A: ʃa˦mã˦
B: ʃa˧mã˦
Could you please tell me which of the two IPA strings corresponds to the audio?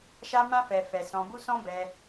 A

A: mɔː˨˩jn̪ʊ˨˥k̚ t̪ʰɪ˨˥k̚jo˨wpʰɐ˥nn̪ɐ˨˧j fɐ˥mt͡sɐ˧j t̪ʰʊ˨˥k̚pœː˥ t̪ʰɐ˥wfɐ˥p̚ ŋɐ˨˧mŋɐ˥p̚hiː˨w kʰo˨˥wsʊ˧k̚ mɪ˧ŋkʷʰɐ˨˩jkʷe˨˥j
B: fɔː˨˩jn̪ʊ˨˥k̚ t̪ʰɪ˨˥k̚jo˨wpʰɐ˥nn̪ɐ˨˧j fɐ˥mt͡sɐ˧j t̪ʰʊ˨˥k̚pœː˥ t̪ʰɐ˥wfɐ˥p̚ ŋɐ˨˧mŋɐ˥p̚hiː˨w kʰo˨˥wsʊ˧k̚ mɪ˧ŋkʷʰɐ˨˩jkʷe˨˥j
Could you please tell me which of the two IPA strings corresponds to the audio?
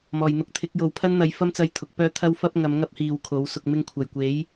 A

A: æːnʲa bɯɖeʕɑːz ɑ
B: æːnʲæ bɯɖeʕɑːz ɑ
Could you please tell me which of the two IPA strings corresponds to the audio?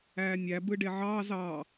B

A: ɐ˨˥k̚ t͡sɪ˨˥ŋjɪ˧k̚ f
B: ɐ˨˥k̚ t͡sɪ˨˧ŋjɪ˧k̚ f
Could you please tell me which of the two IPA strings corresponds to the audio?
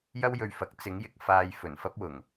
A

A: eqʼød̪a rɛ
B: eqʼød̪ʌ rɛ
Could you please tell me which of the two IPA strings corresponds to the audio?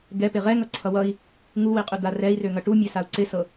A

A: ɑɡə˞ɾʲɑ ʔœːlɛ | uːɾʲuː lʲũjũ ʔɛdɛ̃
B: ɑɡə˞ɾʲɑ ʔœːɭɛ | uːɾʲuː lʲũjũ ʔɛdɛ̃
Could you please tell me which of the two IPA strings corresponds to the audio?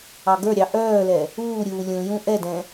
A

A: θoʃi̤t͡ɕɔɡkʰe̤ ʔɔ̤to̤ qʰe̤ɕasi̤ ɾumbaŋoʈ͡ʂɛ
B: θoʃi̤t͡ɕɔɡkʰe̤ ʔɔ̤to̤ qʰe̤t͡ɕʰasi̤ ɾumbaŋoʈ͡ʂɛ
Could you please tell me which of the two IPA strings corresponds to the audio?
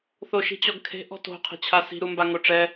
B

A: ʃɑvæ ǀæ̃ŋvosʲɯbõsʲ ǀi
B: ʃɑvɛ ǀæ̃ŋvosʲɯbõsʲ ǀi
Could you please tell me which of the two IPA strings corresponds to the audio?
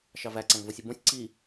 A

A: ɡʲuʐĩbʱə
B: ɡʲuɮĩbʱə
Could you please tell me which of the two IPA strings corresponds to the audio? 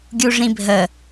A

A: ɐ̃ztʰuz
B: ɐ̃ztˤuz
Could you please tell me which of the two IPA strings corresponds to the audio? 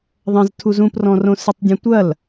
A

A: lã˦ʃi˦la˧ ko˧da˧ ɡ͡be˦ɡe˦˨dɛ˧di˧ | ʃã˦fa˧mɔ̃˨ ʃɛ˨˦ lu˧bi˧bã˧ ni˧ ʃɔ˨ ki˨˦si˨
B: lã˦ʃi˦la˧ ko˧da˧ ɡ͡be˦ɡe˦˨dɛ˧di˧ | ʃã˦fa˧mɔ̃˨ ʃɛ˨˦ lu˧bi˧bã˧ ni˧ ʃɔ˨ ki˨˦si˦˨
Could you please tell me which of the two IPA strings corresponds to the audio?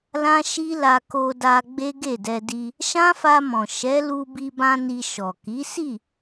B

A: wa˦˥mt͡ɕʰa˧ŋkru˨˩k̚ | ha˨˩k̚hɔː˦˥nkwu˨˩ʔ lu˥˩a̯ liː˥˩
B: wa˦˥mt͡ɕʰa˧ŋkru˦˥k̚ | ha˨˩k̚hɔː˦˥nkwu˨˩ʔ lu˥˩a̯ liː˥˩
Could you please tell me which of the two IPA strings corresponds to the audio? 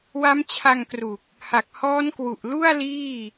A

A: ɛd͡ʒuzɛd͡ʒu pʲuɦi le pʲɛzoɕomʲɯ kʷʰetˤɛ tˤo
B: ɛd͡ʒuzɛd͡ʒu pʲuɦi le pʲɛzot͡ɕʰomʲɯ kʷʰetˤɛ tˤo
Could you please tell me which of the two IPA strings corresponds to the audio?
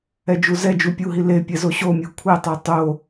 A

